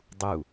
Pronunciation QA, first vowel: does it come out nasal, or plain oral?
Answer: oral